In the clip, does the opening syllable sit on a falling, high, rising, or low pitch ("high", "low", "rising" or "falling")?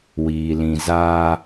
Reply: low